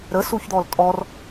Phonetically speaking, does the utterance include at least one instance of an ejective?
yes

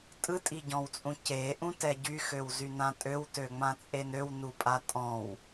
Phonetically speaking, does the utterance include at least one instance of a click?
no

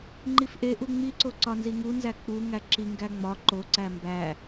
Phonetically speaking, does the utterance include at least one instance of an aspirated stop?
no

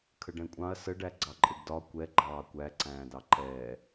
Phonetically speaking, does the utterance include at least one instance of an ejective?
yes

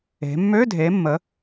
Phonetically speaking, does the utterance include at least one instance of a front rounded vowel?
yes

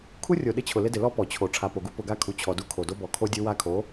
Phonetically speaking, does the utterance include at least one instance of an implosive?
yes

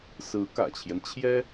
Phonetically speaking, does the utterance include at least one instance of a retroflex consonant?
no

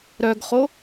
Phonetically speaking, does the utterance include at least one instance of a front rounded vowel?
yes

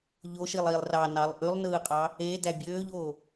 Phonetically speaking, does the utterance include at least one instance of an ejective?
yes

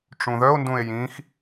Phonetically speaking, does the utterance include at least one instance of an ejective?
no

